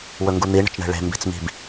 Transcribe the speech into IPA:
w ɵ ŋ ɡ u n̪ i ɳ ə̤ t͡ʃ ɳ e̤ ɭ e̤ m b i̤ t͡s m i̤ b

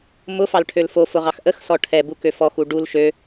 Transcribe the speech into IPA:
m ʊ f ɑ l ʈʰ ø l f o f ʊ ʁ ɑ x ʔ ə x s ɔ ʈʰ ɛ b u k ø f ɔ x u ɖ u l ʃ ø

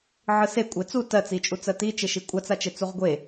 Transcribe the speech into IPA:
ʕ ɯ s e kʷʼ e t͡s u t ɜ t͡s i t͡ʃʼ u t͡s ɜ t i t͡ʃ e ʃ i kʷʼ a t͡s a t͡ʃ e t͡s u ʁ ɡʷ e

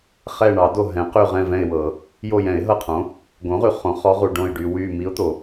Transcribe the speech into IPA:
χ ɛ˦˨ ɳ ɑ˨˩˦ d o˦˨ ɦ ɛ̃˩˥ q y˦˨ ʁ ɛ̃˦˨ v ɛ̃˦˨ ɪ̯ w ɤ˨˩˦ | j o˦˨ j ɛ̃˨˩˦ ɪ̯ ɦ ɤ˦˨ qʰ õ˩˥ | ɡ õ˩˥ ʁ y˨ χ õ˩˥ χ ɔ˧˥ ʁ u˨ ɖ õ˦˨ ɪ̯ ɖ y˨ w y˦˨ m i˧˥ ʊ̯ t̪ o˨˩˦

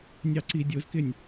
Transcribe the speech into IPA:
nʲ ɑ ǀ i dʲ ʊ z k ɪ nʲ

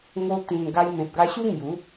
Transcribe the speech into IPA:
ŋ o˧ t̪ ĩ˨˩ n ɡ a˧ j m ẽ˨ p̚ ɡ a˧ ɕ u˦ ŋ j u˨˦

